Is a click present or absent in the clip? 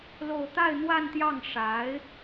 absent